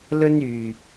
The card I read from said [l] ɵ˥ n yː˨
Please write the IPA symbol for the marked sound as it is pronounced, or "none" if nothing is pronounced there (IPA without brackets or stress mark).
l